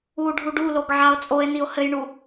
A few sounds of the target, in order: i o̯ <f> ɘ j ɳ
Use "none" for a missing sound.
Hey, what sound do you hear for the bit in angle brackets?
h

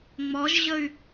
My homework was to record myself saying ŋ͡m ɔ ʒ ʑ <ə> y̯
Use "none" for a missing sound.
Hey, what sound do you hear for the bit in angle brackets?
ə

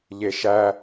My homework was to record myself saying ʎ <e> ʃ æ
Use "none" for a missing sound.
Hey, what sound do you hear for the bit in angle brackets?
e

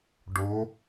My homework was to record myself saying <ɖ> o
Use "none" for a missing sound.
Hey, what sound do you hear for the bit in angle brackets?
ɖ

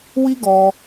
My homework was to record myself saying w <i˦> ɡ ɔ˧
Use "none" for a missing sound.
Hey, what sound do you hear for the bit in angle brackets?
i˦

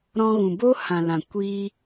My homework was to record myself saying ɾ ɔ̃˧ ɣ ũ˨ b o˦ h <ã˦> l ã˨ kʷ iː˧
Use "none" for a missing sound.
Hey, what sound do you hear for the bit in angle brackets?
ã˨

